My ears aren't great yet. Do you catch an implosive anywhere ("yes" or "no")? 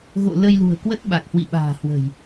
yes